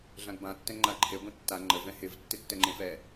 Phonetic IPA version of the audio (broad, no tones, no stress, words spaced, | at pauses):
ɮãɡbã tːɛ̃ŋ͡ǃaǃʰe ɡʷẽtːa ŋ͡ǃə vɛ̃hɪv tːɪtːɛŋ͡ǃẽfɛ